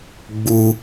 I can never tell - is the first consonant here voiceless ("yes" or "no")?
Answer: no